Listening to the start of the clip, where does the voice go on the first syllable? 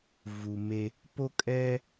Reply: low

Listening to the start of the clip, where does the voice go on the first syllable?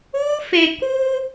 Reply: high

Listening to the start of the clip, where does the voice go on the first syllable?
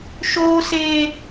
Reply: high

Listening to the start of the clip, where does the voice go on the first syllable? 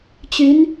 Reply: rising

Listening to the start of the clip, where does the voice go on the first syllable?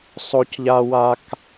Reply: high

